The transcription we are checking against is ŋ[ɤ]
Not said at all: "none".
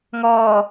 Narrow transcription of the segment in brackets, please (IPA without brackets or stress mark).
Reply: ɔ